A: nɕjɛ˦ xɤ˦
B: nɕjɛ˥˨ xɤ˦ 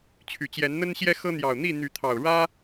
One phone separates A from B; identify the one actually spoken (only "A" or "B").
A